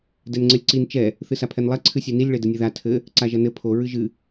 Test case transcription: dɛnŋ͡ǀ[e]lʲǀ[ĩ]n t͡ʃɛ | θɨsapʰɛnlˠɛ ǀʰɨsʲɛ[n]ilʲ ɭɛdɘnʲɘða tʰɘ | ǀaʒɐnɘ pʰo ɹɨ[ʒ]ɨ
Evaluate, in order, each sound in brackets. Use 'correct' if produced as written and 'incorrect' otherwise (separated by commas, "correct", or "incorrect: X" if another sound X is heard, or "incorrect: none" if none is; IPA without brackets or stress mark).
incorrect: ɘ, incorrect: i, correct, correct